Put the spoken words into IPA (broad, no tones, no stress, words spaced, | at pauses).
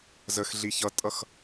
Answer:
zəxɮi çʌtʼʌx